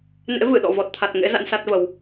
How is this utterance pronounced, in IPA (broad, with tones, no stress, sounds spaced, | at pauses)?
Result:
n ḛ˧˥ v ɨ˧˩ ɗ ɔ̰˧˨ v ɔ˨˩ t̚ t̪ʰ a˨˩ t̚ ŋ ḛ˧˥ z a̰˧˥ n s a˦˥ t̚ v ə˨˦ w